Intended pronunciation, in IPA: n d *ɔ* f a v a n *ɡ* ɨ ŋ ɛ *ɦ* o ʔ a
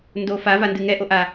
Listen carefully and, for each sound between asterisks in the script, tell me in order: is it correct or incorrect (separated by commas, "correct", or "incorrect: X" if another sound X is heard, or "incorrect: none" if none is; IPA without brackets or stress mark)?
incorrect: o, incorrect: d, incorrect: ʔ